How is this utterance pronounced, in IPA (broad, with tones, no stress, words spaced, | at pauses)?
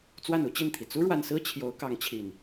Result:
t͡swa˥˨nu˦t͡ɕi˥˨nt̪ʰi˩ t͡su˦ɻwa˨nsɹ̩˦ t͡ɕʰjo˨˦ʊ̯kɑ˨˦ŋt͡ɕʰi˨˩n